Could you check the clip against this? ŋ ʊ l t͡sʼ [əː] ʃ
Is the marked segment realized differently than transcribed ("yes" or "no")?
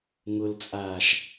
yes